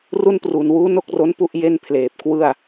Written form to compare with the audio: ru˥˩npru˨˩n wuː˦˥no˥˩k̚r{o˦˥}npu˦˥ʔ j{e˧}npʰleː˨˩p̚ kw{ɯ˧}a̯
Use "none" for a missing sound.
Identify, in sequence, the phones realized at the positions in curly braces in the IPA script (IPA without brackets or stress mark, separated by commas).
o˦˥, e˥˩, ɯ˥˩